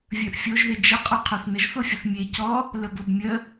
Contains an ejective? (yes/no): yes